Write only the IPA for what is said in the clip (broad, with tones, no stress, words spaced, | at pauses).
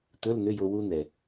t̪ɵ˧˥˧ln̪ʏ˧˥˧jo˧ wu˧n̪ɛ˩